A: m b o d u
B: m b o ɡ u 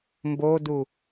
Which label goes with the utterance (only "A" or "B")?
A